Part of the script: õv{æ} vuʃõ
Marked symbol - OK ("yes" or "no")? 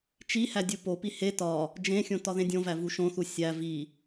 yes